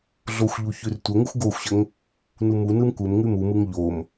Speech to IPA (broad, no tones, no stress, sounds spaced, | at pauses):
ɮ o xʷ ʎ u ç ʉ r tʷ ə ŋ ɯ xʷ ɡ o xʷ ɕ ə ŋ | n u m u n ɯ m kʷ ɘ m ŋ ʉ m u m ɯ ŋ ʎ o m